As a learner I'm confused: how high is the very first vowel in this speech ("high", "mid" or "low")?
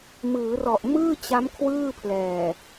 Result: high